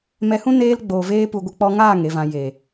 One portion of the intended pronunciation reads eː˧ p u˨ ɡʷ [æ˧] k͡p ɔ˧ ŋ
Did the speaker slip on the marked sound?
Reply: yes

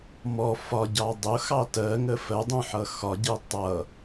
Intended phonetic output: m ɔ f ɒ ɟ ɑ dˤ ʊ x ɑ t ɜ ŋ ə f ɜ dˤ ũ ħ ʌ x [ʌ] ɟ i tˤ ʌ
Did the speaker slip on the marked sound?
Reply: yes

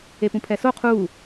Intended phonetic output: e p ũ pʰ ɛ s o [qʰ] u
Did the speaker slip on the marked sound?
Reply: no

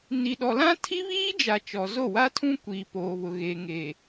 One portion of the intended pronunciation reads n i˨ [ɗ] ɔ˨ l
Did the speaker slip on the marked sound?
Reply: no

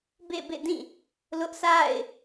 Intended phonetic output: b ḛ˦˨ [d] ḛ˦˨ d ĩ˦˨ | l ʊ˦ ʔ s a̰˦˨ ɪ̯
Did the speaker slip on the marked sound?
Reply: yes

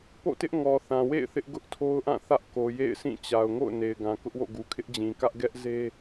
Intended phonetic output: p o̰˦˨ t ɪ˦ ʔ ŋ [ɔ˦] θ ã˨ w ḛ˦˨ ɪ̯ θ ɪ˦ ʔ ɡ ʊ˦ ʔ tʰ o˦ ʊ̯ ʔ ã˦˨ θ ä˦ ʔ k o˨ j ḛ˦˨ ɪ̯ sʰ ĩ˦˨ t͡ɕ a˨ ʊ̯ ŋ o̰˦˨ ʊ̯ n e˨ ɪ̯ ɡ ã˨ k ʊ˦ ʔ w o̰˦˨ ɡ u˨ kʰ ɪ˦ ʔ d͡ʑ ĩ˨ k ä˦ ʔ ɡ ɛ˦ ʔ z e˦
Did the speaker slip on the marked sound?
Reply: yes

